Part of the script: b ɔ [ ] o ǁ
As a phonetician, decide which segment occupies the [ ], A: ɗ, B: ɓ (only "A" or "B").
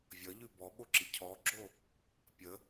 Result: B